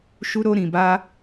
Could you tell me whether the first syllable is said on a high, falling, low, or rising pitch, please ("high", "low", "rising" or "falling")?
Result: high